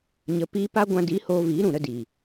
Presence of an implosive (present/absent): absent